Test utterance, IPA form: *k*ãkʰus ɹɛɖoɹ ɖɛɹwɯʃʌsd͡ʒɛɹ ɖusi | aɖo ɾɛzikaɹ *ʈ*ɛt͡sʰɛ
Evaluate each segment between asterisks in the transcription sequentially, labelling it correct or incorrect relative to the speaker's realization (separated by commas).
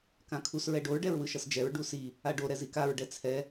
correct, incorrect